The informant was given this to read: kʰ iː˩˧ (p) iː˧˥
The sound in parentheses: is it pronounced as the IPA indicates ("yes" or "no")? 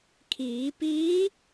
yes